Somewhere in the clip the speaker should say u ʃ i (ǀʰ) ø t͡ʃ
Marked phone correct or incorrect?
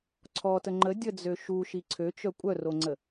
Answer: correct